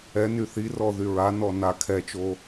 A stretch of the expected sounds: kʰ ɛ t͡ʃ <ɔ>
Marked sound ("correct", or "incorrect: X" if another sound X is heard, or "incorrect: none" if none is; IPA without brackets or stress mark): incorrect: o